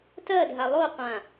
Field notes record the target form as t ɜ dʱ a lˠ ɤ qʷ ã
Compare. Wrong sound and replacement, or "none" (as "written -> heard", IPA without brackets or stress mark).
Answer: ɤ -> o